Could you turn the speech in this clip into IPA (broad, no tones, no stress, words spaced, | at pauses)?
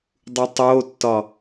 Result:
dˤutˤotːɒ